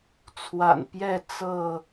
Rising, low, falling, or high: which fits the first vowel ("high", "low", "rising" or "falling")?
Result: low